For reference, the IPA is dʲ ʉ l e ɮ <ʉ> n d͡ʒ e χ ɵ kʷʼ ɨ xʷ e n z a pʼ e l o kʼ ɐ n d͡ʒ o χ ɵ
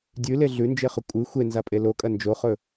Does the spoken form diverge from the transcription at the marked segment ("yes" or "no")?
no